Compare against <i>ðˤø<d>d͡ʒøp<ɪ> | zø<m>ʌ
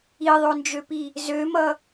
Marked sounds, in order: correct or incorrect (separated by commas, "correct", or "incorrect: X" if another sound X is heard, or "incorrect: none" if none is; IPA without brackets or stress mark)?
correct, incorrect: n, incorrect: i, correct